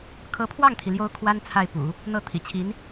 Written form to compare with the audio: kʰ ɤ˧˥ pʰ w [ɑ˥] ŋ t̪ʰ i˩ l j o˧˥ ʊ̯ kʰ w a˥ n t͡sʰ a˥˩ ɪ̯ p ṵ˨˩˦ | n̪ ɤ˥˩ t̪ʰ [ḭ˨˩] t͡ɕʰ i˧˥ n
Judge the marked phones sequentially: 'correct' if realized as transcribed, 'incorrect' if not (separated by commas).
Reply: incorrect, correct